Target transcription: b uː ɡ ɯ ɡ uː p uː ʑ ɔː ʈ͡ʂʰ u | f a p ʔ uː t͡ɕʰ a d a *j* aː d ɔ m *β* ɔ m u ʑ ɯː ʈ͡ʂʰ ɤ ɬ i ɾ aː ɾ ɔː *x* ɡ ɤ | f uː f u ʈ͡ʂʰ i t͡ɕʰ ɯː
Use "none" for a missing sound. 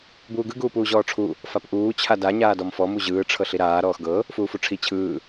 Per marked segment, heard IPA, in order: ɲ, f, x

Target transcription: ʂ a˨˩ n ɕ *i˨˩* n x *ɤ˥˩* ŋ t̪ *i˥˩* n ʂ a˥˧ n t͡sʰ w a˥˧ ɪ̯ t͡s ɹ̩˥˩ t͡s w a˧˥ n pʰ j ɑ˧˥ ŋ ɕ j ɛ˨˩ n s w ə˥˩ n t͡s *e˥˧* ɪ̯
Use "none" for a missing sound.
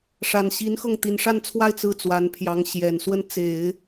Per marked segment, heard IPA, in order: i˧˥, ɤ˥˩, i˨˩, e˨˩˦

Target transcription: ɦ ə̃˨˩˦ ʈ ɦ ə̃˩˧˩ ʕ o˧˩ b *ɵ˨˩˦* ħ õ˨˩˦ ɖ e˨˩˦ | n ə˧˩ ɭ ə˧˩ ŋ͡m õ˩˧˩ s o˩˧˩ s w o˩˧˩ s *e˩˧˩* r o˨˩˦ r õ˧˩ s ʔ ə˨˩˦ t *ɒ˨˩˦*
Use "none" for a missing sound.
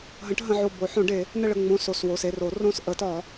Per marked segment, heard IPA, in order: o˨˩˦, e˩˧˩, ɒ˨˩˦

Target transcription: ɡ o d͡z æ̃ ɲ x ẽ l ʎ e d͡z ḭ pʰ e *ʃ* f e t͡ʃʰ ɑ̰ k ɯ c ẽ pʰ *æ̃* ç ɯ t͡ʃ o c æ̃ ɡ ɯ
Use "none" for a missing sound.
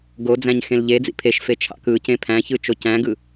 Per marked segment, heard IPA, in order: ʃ, æ̃

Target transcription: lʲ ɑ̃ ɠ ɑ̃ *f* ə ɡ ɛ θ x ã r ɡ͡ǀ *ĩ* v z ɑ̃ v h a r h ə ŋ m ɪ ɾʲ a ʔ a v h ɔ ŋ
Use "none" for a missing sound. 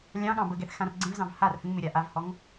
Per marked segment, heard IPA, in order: b, ẽ

